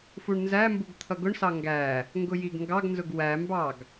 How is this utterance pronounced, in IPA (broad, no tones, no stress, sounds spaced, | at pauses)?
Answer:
f u ɳ n z æ m b u ɡ t̪ʰ ʌ ɡ ʊ ɳ s ɑ ŋ ɡ æ | ŋ ɡ ʊ j i ɡ ŋ ɡ ɑ ɡ n z ʊ ɡ w æ m b ɑ ɡ